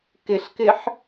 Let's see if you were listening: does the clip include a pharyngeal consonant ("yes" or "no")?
yes